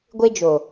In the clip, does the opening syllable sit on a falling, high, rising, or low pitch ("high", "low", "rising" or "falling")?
high